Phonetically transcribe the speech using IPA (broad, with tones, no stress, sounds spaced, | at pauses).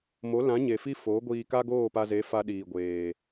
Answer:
m o˨˦ l ã˨˦ ɲ e˨ f i˦ f o˨˦ ɡʷ iː˧ k a˦ ɡ oː˦˨ p a˧ z e˨˦ f a˦ ɗ iː˨ ɡʷ eː˨